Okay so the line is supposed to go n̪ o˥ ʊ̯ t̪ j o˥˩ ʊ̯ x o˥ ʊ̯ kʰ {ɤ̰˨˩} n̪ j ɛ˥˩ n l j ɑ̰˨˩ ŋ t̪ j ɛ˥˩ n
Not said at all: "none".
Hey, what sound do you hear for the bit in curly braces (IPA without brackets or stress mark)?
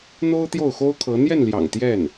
ɤ˧˥